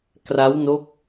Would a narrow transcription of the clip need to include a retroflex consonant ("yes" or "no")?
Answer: no